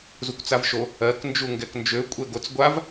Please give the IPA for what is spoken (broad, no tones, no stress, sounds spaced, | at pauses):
z u kʷ t͡s a v ʃ o | ɜ k n d͡ʒ u ŋ ɡ ɛ k n d͡ʒ ø kʷʼ ɛ ɡ o t͡s ɡʷ a v